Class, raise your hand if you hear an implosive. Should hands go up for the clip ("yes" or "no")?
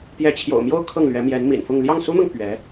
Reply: no